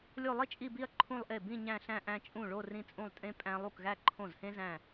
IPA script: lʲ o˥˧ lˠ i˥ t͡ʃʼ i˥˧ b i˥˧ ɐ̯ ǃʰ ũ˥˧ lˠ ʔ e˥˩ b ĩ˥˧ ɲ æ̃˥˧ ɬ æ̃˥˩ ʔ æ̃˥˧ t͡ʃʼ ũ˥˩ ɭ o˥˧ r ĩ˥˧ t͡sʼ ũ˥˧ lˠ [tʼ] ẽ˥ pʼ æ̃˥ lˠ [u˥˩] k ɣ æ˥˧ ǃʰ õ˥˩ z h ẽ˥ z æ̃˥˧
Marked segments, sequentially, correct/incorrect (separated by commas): correct, correct